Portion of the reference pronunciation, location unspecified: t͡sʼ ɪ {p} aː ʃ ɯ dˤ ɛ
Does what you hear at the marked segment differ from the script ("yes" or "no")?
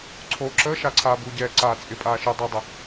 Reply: yes